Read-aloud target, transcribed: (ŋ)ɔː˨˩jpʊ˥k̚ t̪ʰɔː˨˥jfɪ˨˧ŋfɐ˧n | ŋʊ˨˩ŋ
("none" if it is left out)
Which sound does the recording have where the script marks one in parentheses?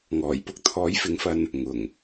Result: ŋ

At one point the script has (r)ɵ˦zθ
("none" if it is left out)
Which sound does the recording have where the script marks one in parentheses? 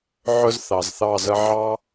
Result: ʕ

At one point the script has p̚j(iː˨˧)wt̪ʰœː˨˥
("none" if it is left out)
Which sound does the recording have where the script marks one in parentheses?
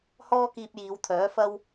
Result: iː˨˧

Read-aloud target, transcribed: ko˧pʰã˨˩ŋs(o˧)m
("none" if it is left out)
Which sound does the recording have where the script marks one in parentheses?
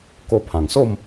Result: o˥˧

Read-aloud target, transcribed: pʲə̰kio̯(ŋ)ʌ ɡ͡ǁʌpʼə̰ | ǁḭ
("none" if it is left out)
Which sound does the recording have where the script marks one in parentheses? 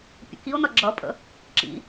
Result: n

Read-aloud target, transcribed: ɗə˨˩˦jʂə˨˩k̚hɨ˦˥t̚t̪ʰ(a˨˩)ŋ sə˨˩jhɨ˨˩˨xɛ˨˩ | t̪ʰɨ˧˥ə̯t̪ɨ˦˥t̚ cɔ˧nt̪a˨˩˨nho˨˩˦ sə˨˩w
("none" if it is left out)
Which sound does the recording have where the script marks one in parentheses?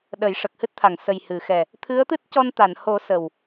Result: a˨˩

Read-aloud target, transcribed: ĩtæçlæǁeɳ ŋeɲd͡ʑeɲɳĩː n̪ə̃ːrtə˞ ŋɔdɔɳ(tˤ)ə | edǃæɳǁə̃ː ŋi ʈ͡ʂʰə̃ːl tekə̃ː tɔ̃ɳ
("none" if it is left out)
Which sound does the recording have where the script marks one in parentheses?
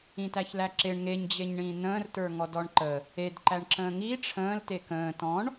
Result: ǃ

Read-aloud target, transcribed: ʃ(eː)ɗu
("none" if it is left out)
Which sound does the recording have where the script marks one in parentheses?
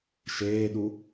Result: eː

